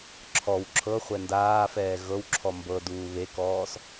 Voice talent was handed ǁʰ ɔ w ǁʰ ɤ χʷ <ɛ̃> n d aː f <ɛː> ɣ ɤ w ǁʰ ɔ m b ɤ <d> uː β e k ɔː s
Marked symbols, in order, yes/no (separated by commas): no, yes, yes